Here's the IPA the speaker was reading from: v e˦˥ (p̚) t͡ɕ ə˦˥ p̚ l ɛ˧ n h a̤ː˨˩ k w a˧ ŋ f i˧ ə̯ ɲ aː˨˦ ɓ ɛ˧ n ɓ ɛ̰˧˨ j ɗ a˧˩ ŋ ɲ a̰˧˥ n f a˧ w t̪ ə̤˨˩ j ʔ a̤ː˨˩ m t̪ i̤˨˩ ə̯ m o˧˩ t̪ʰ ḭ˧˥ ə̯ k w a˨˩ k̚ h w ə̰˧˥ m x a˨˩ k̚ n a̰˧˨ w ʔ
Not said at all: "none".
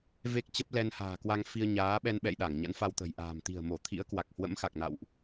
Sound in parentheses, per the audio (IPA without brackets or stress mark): k̚